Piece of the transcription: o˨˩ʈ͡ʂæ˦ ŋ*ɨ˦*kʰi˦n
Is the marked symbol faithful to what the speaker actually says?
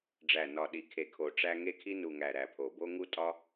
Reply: no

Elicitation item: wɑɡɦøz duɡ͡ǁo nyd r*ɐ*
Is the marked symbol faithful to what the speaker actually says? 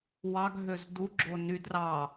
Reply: no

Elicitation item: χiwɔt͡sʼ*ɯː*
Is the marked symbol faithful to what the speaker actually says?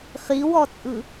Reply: no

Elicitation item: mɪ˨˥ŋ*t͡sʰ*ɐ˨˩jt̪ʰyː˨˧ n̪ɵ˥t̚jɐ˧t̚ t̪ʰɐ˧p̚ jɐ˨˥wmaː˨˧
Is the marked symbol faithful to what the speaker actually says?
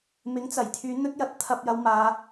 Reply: no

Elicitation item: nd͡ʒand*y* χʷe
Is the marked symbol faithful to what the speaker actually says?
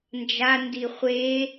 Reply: no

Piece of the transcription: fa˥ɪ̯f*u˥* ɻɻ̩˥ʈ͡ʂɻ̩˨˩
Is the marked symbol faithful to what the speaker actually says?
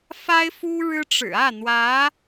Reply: yes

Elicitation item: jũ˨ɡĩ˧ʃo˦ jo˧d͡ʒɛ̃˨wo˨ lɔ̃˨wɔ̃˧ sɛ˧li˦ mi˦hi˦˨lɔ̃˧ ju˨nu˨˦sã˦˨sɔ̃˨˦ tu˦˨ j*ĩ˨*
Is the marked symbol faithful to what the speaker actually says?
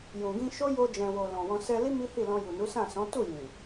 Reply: yes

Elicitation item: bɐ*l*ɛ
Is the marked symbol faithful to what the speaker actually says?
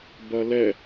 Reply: yes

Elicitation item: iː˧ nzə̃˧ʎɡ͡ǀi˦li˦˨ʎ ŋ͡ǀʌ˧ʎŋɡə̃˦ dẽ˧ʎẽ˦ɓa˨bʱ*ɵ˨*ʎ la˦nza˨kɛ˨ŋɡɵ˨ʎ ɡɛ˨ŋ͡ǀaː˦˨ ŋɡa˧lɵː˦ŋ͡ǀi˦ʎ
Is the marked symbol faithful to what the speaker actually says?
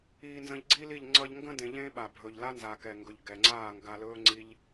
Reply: yes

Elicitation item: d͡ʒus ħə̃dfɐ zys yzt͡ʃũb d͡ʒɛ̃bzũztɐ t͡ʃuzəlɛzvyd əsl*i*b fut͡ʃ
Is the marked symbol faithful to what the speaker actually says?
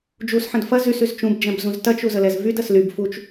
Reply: no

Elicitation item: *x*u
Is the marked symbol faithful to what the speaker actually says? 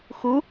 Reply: yes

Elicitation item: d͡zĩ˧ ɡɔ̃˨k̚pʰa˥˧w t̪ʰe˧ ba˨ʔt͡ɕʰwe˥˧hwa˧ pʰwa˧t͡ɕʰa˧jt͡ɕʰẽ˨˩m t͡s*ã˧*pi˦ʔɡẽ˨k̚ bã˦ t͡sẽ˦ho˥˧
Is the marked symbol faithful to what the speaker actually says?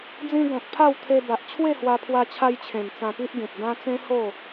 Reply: yes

